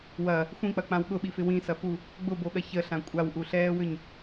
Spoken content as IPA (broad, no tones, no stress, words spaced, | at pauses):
wɐ | xʷĩk͡pɐk͡pãw ɠʊɓifɪ wĩsɐfu | ɡ͡bʊboɠɐ çəɬã kʷʼawʔuɬɛːwʏɲ